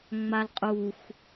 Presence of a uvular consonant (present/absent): present